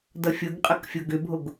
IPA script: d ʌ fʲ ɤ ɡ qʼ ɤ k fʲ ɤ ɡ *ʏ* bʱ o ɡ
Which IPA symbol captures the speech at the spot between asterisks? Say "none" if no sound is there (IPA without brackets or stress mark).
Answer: ʏ